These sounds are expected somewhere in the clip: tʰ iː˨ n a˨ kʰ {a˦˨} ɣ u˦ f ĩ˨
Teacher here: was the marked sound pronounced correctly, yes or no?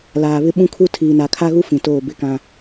no